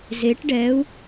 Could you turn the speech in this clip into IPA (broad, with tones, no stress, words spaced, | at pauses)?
ze˩˧ʈɖɛ˩˧u̯